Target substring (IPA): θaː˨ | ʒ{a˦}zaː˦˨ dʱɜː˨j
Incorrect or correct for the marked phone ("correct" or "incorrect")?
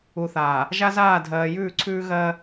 correct